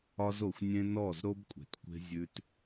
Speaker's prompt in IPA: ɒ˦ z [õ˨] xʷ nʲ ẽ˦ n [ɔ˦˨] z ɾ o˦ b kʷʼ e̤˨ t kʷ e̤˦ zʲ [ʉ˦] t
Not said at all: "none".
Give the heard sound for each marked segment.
o˨, ɔ˦˨, ʉ˦

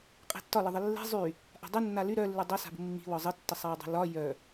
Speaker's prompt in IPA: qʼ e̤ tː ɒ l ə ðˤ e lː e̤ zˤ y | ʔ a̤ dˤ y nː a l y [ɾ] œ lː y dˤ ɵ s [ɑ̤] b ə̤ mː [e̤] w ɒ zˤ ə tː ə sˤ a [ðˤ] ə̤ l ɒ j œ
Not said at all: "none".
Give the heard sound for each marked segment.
ɾ, a̤, i̤, dˤ

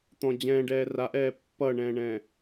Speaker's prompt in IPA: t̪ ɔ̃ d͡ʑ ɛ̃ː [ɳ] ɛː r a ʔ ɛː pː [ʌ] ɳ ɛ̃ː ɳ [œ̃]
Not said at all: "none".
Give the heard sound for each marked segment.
ɖ, ʌ, ɛ̃

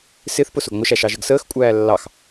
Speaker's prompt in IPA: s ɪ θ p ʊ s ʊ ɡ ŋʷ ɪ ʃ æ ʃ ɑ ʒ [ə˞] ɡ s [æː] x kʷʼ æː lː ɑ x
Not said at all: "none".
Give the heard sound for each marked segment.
ə, əː

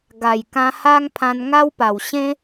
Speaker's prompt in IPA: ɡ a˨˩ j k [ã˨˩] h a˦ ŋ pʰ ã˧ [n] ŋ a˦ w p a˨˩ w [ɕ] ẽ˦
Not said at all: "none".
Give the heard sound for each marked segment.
ã˧, n, ɕ

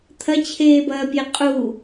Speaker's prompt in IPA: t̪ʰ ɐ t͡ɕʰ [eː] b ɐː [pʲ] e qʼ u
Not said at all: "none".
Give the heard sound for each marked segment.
eː, pʲ

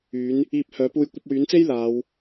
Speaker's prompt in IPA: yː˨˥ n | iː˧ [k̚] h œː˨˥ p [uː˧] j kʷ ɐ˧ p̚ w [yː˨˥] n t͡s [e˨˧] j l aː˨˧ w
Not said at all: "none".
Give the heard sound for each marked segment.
p̚, uː˧, yː˨˥, e˥

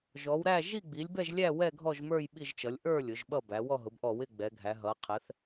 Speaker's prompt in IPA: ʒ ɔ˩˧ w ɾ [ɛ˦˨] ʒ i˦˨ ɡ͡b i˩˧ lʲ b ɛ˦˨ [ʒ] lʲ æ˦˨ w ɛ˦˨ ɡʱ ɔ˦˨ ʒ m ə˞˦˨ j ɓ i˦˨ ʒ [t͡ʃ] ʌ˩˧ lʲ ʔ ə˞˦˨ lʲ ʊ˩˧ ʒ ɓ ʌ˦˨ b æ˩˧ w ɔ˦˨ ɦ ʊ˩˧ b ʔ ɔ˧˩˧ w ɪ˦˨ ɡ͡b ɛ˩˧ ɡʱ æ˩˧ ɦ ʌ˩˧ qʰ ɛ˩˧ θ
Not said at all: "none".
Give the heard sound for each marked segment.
æ˦˨, ʒ, t͡ʃ

